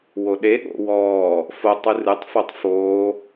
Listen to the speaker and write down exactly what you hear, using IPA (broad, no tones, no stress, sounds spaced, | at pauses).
w o ɗ e ɠ o̰ w ɔː | f o tˤ ɨ r ɨ tˤ f o tˤ f oː